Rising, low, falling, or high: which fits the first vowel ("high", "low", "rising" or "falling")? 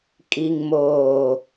low